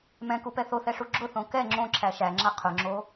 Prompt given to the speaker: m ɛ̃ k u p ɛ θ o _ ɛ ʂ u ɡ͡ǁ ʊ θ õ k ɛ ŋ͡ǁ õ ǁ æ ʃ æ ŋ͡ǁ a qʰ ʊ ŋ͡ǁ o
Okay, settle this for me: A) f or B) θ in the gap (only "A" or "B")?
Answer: B